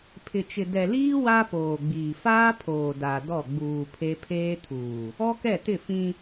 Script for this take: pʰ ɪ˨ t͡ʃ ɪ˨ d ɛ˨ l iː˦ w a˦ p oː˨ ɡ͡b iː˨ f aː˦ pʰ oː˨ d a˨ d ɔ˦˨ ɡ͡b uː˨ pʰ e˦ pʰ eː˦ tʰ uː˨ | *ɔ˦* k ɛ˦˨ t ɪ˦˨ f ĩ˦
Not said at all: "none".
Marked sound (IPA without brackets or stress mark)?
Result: ɔ˦